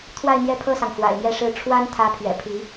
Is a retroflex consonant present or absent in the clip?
present